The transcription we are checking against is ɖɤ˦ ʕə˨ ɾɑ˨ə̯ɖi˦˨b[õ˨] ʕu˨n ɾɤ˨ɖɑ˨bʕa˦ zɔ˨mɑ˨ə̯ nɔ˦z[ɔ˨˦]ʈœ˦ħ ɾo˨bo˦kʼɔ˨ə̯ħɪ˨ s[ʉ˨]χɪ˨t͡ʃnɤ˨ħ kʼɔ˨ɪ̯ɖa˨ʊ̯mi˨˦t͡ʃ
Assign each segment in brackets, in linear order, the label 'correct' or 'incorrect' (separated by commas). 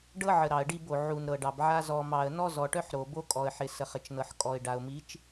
incorrect, incorrect, incorrect